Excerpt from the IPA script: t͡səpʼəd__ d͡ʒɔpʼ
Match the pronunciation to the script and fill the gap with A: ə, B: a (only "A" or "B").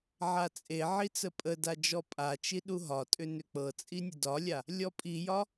B